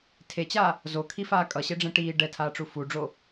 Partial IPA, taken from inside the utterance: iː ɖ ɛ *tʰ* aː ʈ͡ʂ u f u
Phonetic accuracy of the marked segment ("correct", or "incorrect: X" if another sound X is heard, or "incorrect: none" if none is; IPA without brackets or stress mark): correct